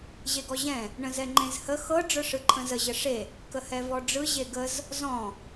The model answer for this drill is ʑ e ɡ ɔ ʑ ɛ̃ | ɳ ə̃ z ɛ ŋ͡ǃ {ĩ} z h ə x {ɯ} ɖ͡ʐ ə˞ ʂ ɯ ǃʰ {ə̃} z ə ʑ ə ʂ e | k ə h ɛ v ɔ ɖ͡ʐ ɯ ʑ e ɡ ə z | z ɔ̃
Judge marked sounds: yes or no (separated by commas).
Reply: no, no, yes